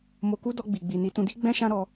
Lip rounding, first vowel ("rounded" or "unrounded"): rounded